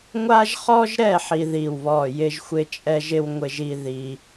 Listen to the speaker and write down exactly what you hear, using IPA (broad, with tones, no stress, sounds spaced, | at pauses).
ŋʷ a˥ ʒ χ ɔ˥ ʒ ɾ ɛ˥˧ ħ i˥ ð i˥˧ w β ɔ˥˧ j ɪ˥ ʒ xʷ ɪ˥ t͡ʃʼ ɛ˥ ʒ ɪ˥ w ŋʷ ɪ˥ ʒ i˥ ð i˥